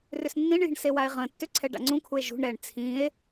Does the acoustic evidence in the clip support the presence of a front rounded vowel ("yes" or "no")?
yes